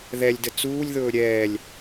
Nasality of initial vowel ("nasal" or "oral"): oral